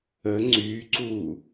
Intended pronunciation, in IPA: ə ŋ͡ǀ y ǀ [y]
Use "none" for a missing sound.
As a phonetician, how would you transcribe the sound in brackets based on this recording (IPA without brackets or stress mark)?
u